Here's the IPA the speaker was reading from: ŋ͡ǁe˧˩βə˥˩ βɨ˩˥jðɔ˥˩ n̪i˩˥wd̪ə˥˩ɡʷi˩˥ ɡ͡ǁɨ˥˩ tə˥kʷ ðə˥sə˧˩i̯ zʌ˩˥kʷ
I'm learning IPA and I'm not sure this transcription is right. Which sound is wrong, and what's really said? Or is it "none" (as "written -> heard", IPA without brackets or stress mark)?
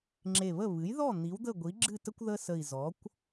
ʌ˩˥ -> ɔ˩˥